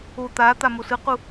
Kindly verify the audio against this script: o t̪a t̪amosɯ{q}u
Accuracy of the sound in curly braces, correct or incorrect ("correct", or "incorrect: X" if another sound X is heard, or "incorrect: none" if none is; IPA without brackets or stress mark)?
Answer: correct